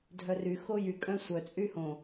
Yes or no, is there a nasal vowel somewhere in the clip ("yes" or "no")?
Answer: yes